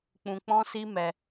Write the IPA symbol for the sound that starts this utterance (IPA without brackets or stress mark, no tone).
k͡p